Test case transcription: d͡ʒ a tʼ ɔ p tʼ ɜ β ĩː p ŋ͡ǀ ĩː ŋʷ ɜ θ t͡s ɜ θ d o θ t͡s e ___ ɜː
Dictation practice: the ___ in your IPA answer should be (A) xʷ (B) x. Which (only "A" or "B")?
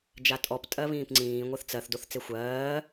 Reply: A